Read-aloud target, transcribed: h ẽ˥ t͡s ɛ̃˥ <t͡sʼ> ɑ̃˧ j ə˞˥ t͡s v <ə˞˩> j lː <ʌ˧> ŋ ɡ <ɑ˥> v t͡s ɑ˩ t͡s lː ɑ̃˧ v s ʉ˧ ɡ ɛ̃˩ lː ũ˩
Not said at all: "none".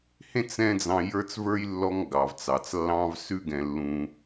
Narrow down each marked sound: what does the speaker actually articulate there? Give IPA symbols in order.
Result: d͡z, ə˞˥, ɔ˧, ɑ˩

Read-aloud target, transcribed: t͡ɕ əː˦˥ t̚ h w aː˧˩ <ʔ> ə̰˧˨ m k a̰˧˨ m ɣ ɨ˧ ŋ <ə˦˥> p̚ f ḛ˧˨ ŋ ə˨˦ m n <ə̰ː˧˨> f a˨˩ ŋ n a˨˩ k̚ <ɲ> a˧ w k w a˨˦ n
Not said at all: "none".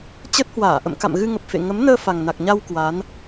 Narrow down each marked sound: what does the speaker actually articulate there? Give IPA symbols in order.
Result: ʔ, ə˨˩, əː˧, ɲ

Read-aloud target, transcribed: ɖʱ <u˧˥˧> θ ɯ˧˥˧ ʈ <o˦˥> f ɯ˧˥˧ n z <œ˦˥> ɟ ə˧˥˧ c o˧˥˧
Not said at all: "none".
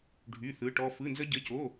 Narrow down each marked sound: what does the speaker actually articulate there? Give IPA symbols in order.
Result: y˧˥˧, ɔ˦˥, ə˦˥

